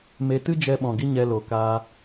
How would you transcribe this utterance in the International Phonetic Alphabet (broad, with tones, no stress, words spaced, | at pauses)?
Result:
me˧ tɨ˦d͡ʒɛ˧ ɓɔ̃˨ɡi˦ ɲɛ˧lo˨kaː˧